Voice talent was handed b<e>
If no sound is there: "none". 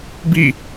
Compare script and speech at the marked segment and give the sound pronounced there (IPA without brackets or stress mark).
i